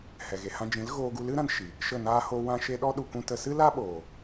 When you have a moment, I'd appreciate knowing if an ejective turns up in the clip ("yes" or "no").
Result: no